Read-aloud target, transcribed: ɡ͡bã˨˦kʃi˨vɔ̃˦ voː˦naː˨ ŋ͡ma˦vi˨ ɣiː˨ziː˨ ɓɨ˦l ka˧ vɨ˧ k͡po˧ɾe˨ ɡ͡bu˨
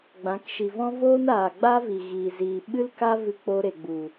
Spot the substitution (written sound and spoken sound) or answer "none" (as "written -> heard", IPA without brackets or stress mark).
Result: ŋ͡m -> ɡ͡b